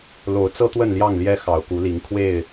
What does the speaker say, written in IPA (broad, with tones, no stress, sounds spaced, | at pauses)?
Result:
l o˨˦ ʊ̯ t͡s ɤ˦ t̪ w ə˥˨ n l j ɑ˥˨ ŋ l j ɛ˦ x ɑ˨˩ ʊ̯ k u˨˦ l i˨˦ ŋ kʰ w e˥˨ ɪ̯